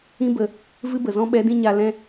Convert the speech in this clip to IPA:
ĩ˦ b ə˨ | v ɨ˦ b ə˨ z ɔ̃˦ ɓ ɛ˨˦ d ĩ˧ ɲ a˨ l ɛ̃˧

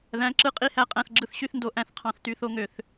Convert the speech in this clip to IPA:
ð æ̃˩˥ ǁ ɯ˧˥˧ qʼ i˧˥ h æ˦˨ qʼ æ̃˦˨ θ ɡ͡ǁ ɯ˦˨ θ ɕ y˥ θ n d o˧˥˧ ʔ æ̃˦˨ θ qʰ ɑ̃˧˥ θ t y˧˥ θ o˥ ŋ ø˦˨ θ

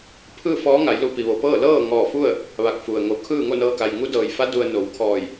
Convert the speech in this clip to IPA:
pʰ ɯː˥˨ f ɔː˧˥ ŋ a˩˧ j l u˧ p i˩ ʋ o˩ p ɤː˥˨ l ɤː˥˨ ŋ ɔː˧˩ f u˥˨ ə̯ | ʋ a˧ k̚ f u˩ ə̯ ŋ o˩ kʰ ɯː˥˨ ŋ o˥˨ n ɤː˧ k a˩ j ŋ u˧˥ d ɤː˩ j f a˧˥ d u˧ ə̯ n o˩˧ w kʰ ɔː˧˩ j

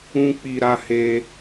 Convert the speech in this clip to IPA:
ũ˦ k͡p i˧ ɾ a˧ h e˧

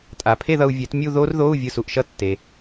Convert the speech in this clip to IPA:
tʼ a˩ pʰ e˥˧ ð ʌ˧ u̯ vʲ ɛ˨˩˦ t mʲ u˥˧ ð o˦˥ r ð o˧˥˧ u̯ vʲ ɯ˧ s u˩ ʔ ʃ ʌ˥˧ tː e˩

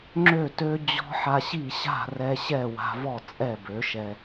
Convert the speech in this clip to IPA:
ŋ͡ǁ ø˥˨ t ø˦˥ d͡ʑ ɔ̤˦˥ ħ a˧ ɕ i˥˨ ɕ a̤˥˨ r ɛ˧ ɕ ɛ˥˨ w a̤˧ v ɔ˥˨ t͡sʼ ɛ˥˨ b ø˩˥ ʃ ɛ˧

